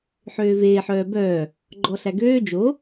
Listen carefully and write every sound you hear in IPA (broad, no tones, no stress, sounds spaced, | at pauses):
ħ øː v eː ħ œː b œː | ɡ͡ǃ ɔ ɬ æ ɡ øː d͡ʒ o